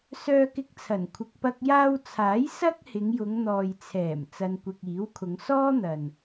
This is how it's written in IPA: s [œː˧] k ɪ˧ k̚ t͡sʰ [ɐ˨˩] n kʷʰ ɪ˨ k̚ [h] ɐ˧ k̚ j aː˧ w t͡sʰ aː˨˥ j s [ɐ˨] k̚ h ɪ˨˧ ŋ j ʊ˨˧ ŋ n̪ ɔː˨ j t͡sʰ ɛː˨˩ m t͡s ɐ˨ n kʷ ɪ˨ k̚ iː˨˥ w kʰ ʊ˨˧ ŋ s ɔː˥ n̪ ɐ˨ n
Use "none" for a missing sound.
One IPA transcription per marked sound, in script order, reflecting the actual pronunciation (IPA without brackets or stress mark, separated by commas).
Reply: œː˧, ɐ˨˩, p, ɐ˥